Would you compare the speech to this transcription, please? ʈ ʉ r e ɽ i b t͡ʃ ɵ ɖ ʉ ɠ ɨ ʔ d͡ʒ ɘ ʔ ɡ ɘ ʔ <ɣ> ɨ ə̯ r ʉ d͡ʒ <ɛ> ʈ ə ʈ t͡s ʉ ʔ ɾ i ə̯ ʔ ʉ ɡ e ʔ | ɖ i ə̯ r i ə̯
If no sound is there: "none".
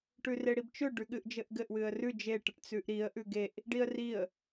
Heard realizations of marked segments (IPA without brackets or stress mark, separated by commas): w, e